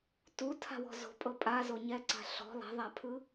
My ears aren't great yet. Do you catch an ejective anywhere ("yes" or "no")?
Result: yes